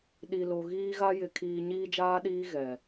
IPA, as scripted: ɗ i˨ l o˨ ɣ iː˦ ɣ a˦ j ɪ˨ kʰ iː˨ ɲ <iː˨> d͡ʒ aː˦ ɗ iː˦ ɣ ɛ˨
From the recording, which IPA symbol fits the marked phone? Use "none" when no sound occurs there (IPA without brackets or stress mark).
iː˦